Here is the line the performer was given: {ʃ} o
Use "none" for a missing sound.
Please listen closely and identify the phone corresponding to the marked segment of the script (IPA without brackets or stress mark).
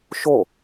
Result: ʃ